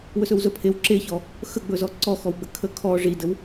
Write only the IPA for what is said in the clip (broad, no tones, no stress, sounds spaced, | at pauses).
w ɵ s ɵ w z ɵ pʰ e w ǁ e ç ɔ | x ə ɡ͡b ɵ z ɔ ǀ ɔ x ɔ w ɡ͡b ə kʰ ə kʰ ɔ ʐ i d ə w